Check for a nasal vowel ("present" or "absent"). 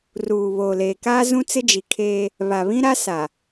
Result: present